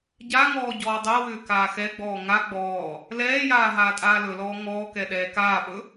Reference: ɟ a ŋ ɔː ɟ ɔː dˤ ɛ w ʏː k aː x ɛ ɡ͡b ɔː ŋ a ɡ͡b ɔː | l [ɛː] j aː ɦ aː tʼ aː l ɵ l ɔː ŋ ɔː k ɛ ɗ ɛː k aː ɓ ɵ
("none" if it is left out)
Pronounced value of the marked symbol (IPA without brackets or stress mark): ɛː